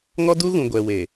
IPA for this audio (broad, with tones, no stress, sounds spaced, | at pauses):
ŋ ɔ˦ d u˦ ɣ ũ˨ ɡʷ ɛ˨ w e˨